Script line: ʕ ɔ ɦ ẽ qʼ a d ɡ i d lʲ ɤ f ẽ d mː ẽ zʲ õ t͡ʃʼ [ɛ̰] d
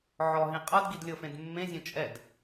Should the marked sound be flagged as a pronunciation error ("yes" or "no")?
yes